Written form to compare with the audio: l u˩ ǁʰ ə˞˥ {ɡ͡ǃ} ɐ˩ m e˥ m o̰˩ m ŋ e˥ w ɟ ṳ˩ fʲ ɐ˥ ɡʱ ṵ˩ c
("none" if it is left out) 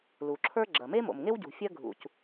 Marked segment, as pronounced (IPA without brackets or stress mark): ɡ͡ǁ